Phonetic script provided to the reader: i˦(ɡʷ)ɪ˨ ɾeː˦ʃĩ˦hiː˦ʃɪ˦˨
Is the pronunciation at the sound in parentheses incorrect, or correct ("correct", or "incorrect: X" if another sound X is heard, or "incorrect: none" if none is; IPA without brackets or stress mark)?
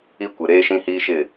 incorrect: kʷ